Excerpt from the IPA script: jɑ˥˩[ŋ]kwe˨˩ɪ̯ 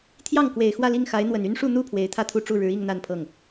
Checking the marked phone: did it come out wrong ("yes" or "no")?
no